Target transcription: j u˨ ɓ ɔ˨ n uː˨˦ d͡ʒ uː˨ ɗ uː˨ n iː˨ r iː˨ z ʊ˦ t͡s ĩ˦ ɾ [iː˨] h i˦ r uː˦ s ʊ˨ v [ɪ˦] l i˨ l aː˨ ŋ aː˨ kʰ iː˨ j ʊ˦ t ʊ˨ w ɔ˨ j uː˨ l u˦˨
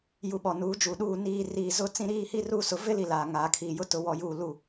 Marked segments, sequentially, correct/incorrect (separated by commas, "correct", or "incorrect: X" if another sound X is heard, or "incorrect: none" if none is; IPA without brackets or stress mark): incorrect: iː˦, correct